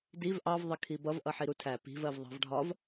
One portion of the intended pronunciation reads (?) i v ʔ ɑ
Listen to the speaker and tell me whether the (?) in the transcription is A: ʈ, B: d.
B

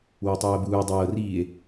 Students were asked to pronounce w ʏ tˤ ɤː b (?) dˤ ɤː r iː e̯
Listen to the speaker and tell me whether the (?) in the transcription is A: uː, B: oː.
A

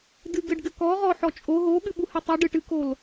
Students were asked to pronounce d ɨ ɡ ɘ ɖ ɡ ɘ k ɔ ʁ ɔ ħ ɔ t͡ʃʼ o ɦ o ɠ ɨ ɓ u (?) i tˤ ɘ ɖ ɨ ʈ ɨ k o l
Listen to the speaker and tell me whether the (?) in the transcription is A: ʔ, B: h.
B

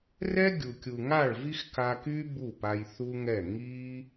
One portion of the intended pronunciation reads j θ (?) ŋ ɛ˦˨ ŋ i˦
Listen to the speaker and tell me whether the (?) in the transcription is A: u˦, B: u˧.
A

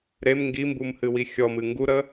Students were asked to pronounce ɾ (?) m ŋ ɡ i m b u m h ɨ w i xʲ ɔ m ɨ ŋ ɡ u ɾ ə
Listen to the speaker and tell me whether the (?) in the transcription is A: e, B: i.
A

